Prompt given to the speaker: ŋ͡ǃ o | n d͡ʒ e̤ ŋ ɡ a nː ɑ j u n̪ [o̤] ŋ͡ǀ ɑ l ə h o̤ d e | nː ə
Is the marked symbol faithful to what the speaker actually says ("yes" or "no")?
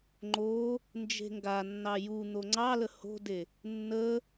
no